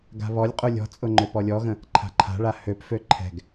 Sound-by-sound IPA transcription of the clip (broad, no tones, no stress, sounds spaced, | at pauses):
ɡ a̤ β ɔ lʲ qʼ u lʲ ɔ̤ t͡sʼ ʊ ŋ͡ǃ ø p ɔ lʲ ɔ ɣ ə̃ | ǃʰ a̤ ǃʰ a̤ ɭ a h ø p f ø ǃʰ ɛ̤ ɡ